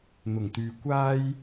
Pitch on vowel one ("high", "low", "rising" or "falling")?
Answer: low